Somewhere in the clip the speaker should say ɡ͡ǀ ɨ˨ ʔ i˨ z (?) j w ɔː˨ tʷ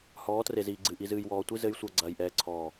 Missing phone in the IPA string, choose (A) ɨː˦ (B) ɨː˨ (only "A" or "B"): B